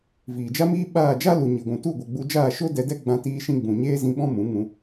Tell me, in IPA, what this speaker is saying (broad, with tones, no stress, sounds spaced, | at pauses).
v iː˨ d͡ʒ a˦ m iː˦ ɓ aː˦˨ d͡ʒ a˦ l u˨ ɲ i˨ ɡʷ ũ˨ t u˦˨ ɡʷ ɛ˨ ɡ͡b u˧ d͡ʒ aː˦˨ ʃ o˦ d ɛ˧ d ɛ˦ ɡ͡b ã˧ t iː˧ ʃ ĩ˧ ɡ͡b ũ˨ ɲ eː˦ z ĩ˧ ɓ ɔ̃˦ m ũ˨˦ ŋ ũ˧